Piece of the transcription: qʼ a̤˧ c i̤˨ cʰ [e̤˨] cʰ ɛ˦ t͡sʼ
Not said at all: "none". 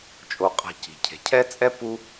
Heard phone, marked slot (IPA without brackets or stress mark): e̤˨